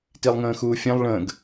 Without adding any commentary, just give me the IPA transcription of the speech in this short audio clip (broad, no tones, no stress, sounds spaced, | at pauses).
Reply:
t i lˠ ŋ ə̃ː x uː fʲ ɛ̃ lˠ ɭ ə̃ː ɡ